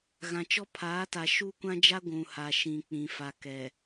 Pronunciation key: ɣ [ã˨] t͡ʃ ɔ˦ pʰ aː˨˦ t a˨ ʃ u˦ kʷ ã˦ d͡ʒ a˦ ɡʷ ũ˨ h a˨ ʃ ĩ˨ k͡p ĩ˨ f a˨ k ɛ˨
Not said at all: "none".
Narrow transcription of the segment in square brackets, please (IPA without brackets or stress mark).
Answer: ã˨